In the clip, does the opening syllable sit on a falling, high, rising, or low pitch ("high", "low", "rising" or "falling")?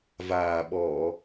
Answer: low